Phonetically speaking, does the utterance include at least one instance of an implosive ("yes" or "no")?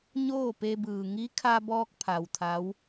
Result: no